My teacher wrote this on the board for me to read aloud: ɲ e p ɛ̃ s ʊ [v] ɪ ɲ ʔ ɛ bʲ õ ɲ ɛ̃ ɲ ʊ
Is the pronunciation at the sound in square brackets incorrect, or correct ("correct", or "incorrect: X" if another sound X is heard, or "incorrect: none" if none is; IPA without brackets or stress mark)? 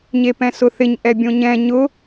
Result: incorrect: θ